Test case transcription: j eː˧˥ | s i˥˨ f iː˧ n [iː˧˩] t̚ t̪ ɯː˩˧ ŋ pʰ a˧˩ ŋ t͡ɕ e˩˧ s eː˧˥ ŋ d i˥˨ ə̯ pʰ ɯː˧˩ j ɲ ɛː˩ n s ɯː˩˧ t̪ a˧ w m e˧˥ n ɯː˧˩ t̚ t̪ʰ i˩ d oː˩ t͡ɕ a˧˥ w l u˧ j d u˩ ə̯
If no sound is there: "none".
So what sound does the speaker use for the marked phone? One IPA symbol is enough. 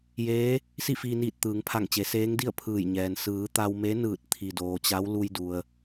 iː˧˩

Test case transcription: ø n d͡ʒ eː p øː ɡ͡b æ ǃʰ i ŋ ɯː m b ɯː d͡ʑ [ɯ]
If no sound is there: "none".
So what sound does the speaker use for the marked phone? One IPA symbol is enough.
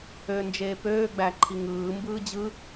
ɯ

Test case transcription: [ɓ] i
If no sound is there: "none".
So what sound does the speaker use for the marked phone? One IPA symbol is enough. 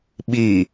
ɓ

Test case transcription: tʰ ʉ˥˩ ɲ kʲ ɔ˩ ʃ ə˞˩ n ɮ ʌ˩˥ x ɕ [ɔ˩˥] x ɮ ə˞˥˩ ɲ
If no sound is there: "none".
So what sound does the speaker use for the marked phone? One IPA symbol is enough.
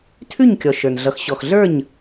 ɔ˩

